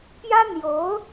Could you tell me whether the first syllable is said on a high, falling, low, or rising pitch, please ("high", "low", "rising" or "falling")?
high